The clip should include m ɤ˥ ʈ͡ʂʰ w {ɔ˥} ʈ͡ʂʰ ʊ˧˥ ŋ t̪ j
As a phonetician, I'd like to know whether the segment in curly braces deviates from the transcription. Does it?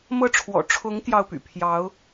yes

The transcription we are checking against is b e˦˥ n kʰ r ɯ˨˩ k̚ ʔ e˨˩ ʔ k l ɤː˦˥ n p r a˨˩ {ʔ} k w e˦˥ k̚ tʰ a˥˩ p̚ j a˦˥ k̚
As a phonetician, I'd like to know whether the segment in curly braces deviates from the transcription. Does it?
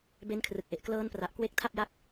no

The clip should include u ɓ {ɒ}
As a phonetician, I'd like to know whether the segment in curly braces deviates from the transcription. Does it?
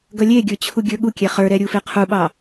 yes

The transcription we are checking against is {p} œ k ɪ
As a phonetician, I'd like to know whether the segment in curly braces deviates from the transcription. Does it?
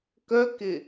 yes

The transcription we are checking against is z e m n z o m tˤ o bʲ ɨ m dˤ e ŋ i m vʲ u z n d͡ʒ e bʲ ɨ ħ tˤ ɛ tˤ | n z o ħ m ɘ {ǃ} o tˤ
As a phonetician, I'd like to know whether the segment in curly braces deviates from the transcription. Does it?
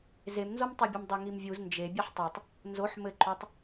no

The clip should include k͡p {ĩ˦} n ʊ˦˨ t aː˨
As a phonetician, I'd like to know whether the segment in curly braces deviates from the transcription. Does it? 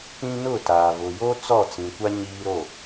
no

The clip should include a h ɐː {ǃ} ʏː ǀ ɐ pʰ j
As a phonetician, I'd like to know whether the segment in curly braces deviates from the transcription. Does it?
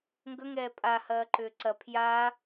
no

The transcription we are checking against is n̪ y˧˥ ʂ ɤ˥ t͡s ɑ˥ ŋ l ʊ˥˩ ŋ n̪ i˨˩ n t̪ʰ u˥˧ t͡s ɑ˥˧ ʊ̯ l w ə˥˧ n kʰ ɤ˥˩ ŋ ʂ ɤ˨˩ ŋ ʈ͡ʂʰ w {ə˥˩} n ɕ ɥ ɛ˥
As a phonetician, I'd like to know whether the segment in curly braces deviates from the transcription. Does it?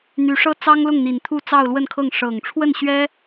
no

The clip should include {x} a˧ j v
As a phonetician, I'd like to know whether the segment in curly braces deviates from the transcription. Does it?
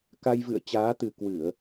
yes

